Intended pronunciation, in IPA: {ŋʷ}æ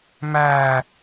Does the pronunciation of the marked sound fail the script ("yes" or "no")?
yes